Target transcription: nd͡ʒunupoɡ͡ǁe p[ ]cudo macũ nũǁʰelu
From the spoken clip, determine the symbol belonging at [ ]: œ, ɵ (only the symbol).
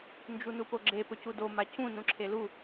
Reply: ɵ